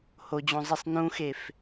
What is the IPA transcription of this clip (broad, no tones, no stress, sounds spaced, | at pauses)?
h o d͡ʑ õ zˤ i sˤ n ũ x e f